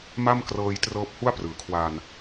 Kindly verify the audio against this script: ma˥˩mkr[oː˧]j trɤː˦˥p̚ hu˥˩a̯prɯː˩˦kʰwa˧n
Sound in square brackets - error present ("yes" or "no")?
yes